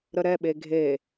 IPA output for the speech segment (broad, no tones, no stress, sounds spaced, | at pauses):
ɾ ə ɾ ɛ ɓ e ɡʱ e